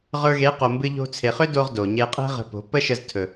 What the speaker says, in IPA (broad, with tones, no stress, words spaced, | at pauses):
ʁə˞˧ɣe˨˦qo˨ mbɨ˧ʎo̤˧ t͡sʰe˨χʏ˦do˧ʁ do˨ɲe˧ qʼe̤˦ʁə̤˧po̤˨˦ pə˦ʃə˧ztʰɵ˨